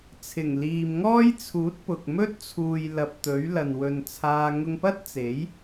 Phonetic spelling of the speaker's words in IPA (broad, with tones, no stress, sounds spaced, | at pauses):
t͡sʰ ɪ˨˩ ŋ l iː˨ m ŋ ɔː˥ j t͡sʰ uː˨˥ t̚ p ʊ˨ k̚ m ɵ˥ t̚ t͡sʰ uː˨ j l ɐ˨ p̚ t̪ ɵ˨˥ ɥ l ɐ˨ n w ɵ˨ n t͡sʰ aː˧ ŋ ʊ˧ ŋ p ɐ˥ t̚ t͡s e˨˥ j